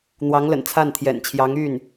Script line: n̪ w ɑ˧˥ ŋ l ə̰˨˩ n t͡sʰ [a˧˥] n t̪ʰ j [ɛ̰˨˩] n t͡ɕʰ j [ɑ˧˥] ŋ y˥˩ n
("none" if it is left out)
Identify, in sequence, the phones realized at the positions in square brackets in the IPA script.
a˥˩, ɛ̰˨˩, ɑ˧˥

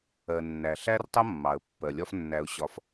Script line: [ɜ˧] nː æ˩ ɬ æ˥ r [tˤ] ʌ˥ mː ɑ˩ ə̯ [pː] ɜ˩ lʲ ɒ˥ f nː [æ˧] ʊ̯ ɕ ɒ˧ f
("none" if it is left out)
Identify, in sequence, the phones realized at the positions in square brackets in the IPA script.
ɜ˩, tˤ, pː, æ˧

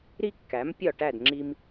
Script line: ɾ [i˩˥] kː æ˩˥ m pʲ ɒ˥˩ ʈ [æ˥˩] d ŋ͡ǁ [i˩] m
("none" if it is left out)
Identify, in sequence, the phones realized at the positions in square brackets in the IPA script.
i˥, æ˥˩, i˧

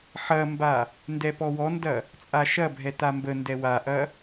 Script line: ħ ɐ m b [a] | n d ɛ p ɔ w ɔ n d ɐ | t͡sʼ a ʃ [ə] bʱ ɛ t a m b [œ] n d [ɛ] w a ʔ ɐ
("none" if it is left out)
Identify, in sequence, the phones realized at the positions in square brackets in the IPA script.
a, ɐ, ə, ɛ

